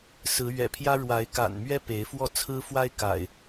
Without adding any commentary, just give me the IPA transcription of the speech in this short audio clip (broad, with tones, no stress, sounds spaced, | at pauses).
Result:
s ɹ̩˨˦ ɥ ɛ̰˨˩ pʰ j ä˦ ɻ w a˨˦ ɪ̯ k a̰˨˩ n m ɥ ɛ˦ p e˨˦ ɪ̯ f w ɔ˥˨ t͡sʰ ɹ̩˦ f w a˦ ɪ̯ k a̰˨˩ ɪ̯